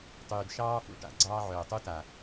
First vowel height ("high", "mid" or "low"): high